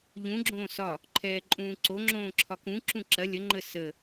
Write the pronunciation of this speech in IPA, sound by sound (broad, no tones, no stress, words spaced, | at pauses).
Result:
ʎũɡ͡ǁõː sɒ | ǃʰɛːǃʼũːǀoŋ͡ǁõː ǁʰɒkũǁũ ǁɐ lʲəŋ͡ǃə sə